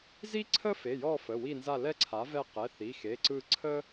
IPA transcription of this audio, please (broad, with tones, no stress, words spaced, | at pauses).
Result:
zi˥ǀʰə˥fe˩˧˩jɔ˦˨ fə˩˧˩wi˦˨nza˦˨ lɛ˥ǀʰa˩˥ vɛ˦˨qɛ˩˧˩θi˩˧˩ xe˩˧˩ǀɯ˦˨ ǀʰə˥